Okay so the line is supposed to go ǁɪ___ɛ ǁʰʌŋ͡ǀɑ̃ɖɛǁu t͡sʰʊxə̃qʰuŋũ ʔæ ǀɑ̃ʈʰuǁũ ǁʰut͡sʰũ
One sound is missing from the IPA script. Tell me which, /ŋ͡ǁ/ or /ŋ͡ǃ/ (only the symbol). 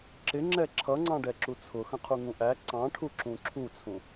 ŋ͡ǁ